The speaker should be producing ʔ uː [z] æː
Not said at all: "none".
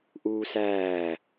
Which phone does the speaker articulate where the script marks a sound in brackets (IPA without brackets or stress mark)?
s